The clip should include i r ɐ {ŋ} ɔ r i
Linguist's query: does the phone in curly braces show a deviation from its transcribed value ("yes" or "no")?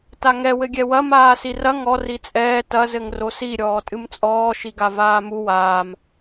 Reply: no